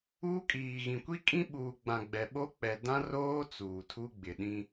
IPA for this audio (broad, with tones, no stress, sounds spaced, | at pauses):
uː˦ kʼ iː˨ ɣ ĩ˨ kʷ i˦ kʼ ĩ˦ ɓ uː˨ ɡ͡b ã˨ ɡ͡b ɛ˨ ɓ o˦ k͡p ɛ˨ d ã˦ r oː˦ t͡s uː˨ tʰ u˦ ɡ͡b ɪ˨ ɗ ĩ˦